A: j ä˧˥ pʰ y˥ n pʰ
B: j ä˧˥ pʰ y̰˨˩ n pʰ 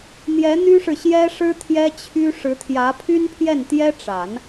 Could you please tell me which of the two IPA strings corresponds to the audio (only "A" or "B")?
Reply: A